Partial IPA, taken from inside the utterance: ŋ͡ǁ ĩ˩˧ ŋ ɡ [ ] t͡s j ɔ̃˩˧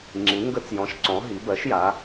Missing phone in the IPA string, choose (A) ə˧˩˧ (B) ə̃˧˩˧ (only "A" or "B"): A